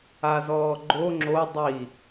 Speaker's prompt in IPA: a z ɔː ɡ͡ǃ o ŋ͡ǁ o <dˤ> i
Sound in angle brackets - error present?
no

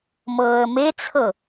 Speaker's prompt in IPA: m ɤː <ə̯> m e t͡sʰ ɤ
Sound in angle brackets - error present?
no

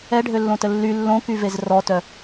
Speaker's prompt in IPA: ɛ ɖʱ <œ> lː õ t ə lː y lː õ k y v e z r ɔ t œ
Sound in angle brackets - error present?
yes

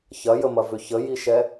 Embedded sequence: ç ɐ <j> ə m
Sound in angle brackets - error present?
no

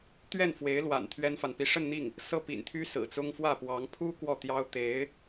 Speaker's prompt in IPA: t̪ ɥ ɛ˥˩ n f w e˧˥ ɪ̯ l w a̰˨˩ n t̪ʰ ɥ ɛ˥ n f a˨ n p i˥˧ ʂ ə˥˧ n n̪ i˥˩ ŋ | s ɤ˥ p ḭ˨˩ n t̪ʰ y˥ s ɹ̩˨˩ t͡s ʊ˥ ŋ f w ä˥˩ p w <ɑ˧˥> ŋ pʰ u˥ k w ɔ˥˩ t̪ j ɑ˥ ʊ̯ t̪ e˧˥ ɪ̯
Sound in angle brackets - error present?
no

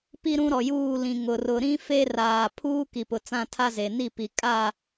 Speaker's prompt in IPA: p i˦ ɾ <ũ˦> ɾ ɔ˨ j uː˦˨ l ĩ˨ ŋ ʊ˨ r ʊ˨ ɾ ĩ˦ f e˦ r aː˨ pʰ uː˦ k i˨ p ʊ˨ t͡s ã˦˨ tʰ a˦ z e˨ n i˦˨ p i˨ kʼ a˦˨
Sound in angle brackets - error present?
no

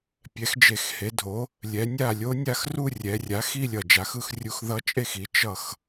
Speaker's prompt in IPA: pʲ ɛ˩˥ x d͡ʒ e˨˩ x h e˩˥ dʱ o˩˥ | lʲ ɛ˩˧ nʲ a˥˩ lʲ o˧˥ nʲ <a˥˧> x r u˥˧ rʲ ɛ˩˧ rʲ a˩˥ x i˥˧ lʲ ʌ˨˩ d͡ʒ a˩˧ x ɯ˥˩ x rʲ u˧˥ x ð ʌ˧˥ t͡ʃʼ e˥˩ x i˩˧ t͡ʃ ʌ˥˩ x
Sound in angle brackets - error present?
no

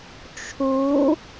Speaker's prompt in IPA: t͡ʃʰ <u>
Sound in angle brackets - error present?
no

